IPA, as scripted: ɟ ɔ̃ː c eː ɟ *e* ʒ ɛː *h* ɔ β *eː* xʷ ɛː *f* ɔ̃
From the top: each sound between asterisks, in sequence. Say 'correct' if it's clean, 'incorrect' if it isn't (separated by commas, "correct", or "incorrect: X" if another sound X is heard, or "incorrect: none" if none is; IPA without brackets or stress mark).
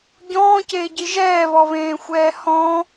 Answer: incorrect: i, incorrect: β, incorrect: ẽː, incorrect: h